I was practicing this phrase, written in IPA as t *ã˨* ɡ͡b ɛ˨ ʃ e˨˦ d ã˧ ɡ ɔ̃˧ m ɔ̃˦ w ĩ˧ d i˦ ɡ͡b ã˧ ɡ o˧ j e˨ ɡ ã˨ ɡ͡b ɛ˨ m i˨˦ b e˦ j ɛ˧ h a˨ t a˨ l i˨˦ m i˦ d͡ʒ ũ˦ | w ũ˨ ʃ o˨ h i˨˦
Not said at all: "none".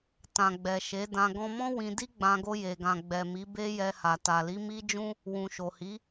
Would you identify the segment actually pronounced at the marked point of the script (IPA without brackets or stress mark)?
ã˨